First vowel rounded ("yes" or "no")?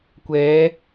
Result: no